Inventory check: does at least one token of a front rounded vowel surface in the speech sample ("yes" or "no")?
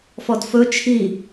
no